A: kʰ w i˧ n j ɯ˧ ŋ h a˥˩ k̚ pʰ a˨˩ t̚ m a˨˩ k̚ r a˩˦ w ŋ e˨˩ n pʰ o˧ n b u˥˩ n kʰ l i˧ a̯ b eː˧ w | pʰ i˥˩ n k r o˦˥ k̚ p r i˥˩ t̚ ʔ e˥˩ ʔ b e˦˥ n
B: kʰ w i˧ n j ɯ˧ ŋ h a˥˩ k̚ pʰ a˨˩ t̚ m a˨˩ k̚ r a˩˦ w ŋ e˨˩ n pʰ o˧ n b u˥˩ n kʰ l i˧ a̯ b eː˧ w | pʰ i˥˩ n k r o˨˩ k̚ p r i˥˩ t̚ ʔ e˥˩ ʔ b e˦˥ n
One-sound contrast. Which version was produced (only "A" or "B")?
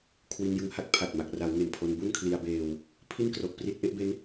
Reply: B